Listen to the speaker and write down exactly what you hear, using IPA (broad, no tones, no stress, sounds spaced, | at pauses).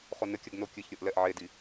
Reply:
χ o n ɘ kʲ ɐ ɡ n o kʲ ɨ ç ɾʲ o ʔ l ɛ ʔ ʕ e d i